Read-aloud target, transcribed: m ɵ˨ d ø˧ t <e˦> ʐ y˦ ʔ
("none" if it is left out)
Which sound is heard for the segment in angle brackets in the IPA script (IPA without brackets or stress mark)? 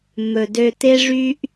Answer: e˦